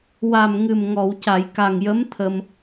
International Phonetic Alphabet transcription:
w a˨˩ m ŋ ɨ˨˩ m ŋ ɔ˨˩˨ w c a˨˩˨ j k a˨˩ ŋ j ə˧˥ m t̪ʰ ə˧ m

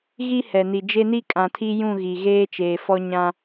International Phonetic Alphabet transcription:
ɣ i˦ h ɛ˨ n i˨ d͡ʒ e˦ n i˦ kʼ ã˨ tʰ i˦ j ũ˦˨ ɣ i˨ ɣ eː˦ t͡ʃ eː˨ f ɔ˦ ɲ ã˦

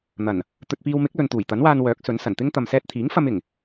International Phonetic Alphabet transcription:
n̪ ɐ˨˩ n | t̪ ɵ˨ t̚ p iː˧ w m ɪ˨˥ k̚ l ɵ˨ n t̪ uː˨˩ j t̪ ɐ˨˥ n w aː˧ n w œː˨˥ k̚ s ɵ˨˥ n s ɐ˨˩ n t̪ ɪ˥ ŋ t̪ ɐ˨ m s ɛː˧ t̚ t̪ʰ iː˨˥ ŋ f ɐ˧ m ɪ˨˩ ŋ

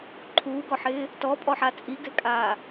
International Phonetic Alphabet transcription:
ǃʰ uː ɡ ɔ ħ ɪː | t ɔ pʼ ɔ ħ a t͡sʼ i ɡ ɛ kʼ aː

